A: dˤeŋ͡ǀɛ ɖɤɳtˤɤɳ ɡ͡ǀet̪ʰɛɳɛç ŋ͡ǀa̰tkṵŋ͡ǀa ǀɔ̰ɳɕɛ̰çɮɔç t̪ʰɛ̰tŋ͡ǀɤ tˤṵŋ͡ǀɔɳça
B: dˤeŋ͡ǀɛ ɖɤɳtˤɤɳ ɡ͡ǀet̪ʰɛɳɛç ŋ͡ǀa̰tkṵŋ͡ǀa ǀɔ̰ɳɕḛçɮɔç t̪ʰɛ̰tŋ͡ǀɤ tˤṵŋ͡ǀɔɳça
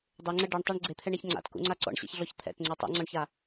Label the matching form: B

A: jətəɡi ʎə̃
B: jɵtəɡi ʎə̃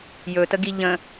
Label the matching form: B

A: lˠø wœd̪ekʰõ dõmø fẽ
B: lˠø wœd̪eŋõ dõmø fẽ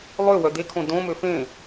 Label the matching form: A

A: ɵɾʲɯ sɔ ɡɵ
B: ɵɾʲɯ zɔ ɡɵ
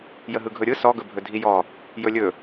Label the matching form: A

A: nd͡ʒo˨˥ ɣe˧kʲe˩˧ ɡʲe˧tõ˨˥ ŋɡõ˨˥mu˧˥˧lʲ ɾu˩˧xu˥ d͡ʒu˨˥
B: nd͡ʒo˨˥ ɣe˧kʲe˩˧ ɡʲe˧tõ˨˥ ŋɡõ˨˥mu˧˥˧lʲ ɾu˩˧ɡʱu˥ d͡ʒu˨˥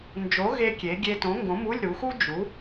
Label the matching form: A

